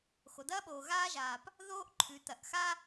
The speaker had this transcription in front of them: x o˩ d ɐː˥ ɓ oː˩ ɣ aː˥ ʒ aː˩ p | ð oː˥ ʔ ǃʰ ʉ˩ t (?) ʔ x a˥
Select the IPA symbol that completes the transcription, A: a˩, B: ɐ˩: B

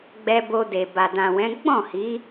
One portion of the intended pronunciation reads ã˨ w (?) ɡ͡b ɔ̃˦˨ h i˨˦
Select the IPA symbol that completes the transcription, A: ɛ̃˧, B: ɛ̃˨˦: B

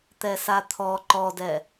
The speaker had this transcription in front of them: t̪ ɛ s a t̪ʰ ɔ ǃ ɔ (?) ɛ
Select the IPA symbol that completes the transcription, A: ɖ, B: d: B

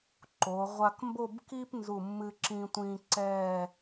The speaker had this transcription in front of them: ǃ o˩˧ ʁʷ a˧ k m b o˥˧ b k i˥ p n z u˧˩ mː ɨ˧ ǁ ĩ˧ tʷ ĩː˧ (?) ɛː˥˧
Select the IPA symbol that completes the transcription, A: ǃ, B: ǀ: B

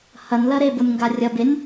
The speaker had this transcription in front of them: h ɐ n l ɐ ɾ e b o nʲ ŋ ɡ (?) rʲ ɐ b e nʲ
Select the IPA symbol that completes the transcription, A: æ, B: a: B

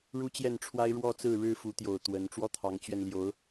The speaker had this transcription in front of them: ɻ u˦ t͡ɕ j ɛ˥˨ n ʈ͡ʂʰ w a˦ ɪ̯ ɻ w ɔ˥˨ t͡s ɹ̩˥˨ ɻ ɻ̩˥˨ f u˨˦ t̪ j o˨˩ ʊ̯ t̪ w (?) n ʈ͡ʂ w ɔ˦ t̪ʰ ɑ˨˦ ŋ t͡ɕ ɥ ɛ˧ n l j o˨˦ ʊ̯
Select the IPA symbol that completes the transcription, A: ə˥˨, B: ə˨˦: B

